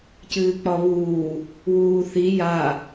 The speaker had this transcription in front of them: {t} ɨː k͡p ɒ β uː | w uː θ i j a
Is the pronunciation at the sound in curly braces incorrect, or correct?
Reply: incorrect